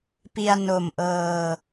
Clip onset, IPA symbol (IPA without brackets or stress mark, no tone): p